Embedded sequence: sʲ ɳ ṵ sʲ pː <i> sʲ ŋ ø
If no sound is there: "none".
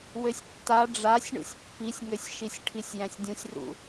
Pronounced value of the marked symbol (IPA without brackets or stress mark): i